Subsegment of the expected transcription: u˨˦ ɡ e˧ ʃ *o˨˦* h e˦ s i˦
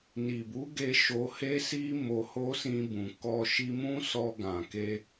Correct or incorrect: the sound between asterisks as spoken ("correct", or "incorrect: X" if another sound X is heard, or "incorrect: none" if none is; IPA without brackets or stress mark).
incorrect: o˧